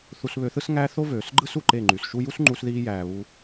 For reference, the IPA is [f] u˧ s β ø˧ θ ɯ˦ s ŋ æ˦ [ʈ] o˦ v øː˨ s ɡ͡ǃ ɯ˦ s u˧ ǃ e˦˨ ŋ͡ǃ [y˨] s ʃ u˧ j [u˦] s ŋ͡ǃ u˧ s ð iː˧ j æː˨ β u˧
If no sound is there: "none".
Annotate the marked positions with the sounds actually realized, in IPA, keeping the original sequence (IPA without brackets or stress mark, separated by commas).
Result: θ, θ, y˨, u˦